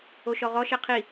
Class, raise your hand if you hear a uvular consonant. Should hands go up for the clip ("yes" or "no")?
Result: yes